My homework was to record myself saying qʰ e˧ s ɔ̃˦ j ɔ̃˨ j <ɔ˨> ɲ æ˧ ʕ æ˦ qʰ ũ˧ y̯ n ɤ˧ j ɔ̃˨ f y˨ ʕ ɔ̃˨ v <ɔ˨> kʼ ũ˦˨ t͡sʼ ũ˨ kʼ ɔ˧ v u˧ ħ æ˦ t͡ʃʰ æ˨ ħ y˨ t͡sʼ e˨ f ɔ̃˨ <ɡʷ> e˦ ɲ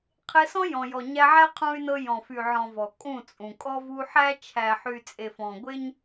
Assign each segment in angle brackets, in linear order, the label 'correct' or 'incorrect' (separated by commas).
correct, correct, correct